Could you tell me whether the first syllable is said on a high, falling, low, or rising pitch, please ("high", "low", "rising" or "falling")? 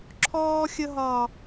high